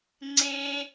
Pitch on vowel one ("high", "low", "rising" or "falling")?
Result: high